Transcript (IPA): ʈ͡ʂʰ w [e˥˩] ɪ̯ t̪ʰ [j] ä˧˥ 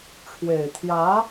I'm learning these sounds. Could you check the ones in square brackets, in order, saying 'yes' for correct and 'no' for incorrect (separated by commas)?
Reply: no, yes